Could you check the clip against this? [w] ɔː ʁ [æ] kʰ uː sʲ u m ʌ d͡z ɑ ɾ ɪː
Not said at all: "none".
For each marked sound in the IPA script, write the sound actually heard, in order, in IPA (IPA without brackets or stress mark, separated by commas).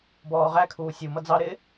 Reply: b, æ